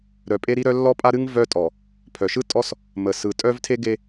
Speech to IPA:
ɾ œ˨ pʼ e˦ ɾ i˦ ɾ œ˦ lː ɔ˦ pʼ a˦ ɾ ɨ˦ ŋ v œ˦ tʼ ɔ˨ | pʰ œ˨ ʃ ɯ˦ tʼ ɔ˦ s | m ə˨ s ɯ˨ tʼ œ˦ v tʰ e˦ ɡ e˦

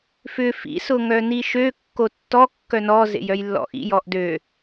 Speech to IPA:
f ʏ f ḭ s ʊ ŋ œ n i ʃ ø kː o tː ɔ kː œ n ɔ z ḛ j œ j lː ɔ̰ ʔ ḭ j ɔ ʔ d ø

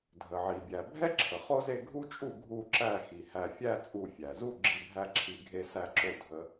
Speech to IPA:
dʱ ə˩ ʕ i˩ bʲ æ˩ bʱ ɛ˥ ǁʰ ə˩ χ o˥ z e˥˨ ɡʱ u˥ t͡ʃʼ u˥˨ ɡʱ u˧˩ ǁ æ˧˩ x i˩ h æ˧˩ fʲ æ˥˨ t͡sʼ u˧˩ fʲ æ˩ z u˥˨ ɡ͡ǁ i˥˨ bʱ æ˥ ǁʰ i˧˩ ɡʱ e˥˨ s æ˥˨ ǁ o˥˨ dʱ ə˥

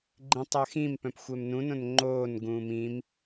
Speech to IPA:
ɡ͡ǃ ĩ tˤ ʉ x ĩ m p œ̃ p xʷ ɛ m n ũ n õ n ŋ͡ǃ oː n ɡ ũː m ĩ m

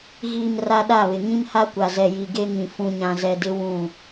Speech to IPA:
ɣ i˨ m r a˦ ɗ a˦˨ β ɪ˨ ŋ ĩ˦ m h a˦ kʷ a˨ z ɛ˨ j i˨ ɡ e˦ ŋ ĩ˨ f ũ˨ ɲ ã˨ z ɛ˨ d ɪ˦ w ũ˦˨

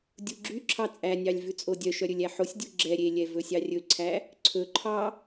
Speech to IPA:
dʲ u ɡ͡ǁ y ǁʰ ɑ t͡sʼ æ nʲ ɑ lʲ v ʉ t͡sʼ o dʲ œ ʃ œ ɾʲ ɵ lʲ æ ħ o sʲ dʲ u ɡ͡ǁ ɛ ɾʲ e lʲ ɛ v ɵ sʲ ɑ rʲ ɵ ǀʰ æ | ǀʰ ɵ ǃʰ ɑ

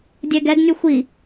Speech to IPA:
dʲ ɛ ɡ ɛ ɡ nʲ ʉ xʷ i

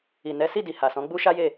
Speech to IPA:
i˨ n ɛ˨˦ s i˦˨ d i˨ h a˨ s ɔ̃˨˦ ɡ͡b u˦ ʃ a˦ j e˦˨

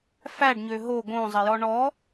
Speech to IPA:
f æ ɖ ɲ ø ɦ o ɡ õ zˤ ɘ j ɔ ɳ ɔ

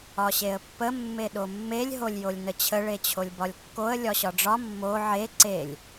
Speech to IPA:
ɒ ɕ e ə̯ pː ə mː e ɗ o mː e lʲ ɦ o lʲ j o lʲ n ə t͡ɕʰ ə ɭ e t͡ɕʰ o lʲ b ɒ lʲ kː o ə̯ lʲ ɒ ɕ ɒ ɖ͡ʐ ɒ mː o ʕ e ǀ e lʲ

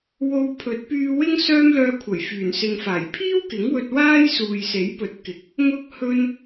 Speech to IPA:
w o˧ w pʰ ɵ˨˥ t̚ p yː˧ w ɪ˥ ŋ s œː˥ m l œː˧ kʷʰ ɐ˨˩ j f yː˨˩ n s ɪ˨ ŋ f aː˨˩ j pʰ iː˥ w k ɪ˨˥ ŋ w ɵ˧ t̚ w aː˥ j s uː˨ j s e˨˥ j p ɵ˨˥ t̚ k ɪ˨˥ k̚ | ŋ ʊ˥ k̚ h ɵ˥ n

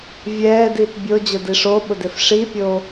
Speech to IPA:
vʲ ɛː d iː t bʲ o d͡ʑ ʊ d i ʂ o ɓ ʊ d ɪ f ʂ i pʲ o

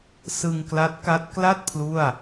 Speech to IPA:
s ɯ˧ ŋ k l a˦˥ t̚ k a˦˥ t̚ k l a˥˩ t̚ pʰ l u˥˩ a̯

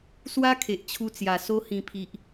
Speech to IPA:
s w a˦ kʰ e˨ ʔ t͡ɕʰ u˧ t͡s j a˨˩ s o˧ h ĩ˨˩ pʰ i˨ ʔ

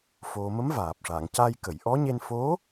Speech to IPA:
f o˧ m ə˧˥ m v aː˨˩ p̚ ʂ a˨˩˨ ŋ c a˧ j k ə˨˩˨ j ʔ ɔ˧˥ ɲ e˧ n f o˧˥

